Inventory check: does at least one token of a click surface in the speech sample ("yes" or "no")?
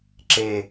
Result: yes